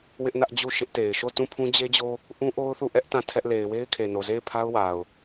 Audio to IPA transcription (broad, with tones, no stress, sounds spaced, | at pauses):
w ɪ˦ ʔ n ä˦ ʔ d͡ʑ u˦˨ ʃ ɪ˦ ʔ t e˨ ɪ̯ ʃ o˦˨ t ũ˦˨ pʰ ũ˦ d͡ʑ e˦ d͡ʑ o˦ | ʔ ũ˦ ʔ o˦ ʊ̯ θ u˦˨ ʔ ɛ˦ ʔ t ã˦˨ tʰ ɛ˦ ʔ l e˨ ɪ̯ w e˦ ɪ̯ kʰ e˨ n o˨ z e˦˨ ɪ̯ pʰ a˦ ʊ̯ w a˨ ʊ̯